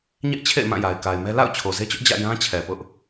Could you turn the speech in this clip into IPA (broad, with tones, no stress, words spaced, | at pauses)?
ɲɛ˦ʔt͡ɕʰḛ˦˨ɪ̯mã˦˨ ja˨ɪ̯ka˨ɪ̯mɛ˦ la̰˦˨ʊ̯ t͡ɕʰo˨ze˦t͡ɕʊ˦ʔ d͡ʑä̰˦˨ jã˦t͡ɕʰɛ˨pʊ˦ʔ